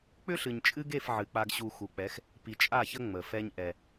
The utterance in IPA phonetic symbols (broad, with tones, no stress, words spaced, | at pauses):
k͡pʏ˦ɬɨ˨ɲt͡ʃʼɨ˦ɡe˦˨f ʕɨ˨k͡pa˦ɡ ɕu˦ xu˨k͡pɛ˨˦x | pi˨t͡ʃʼa˦˨çə˦ ŋ͡mə˨fɛ˦ɲ ʔɛ˦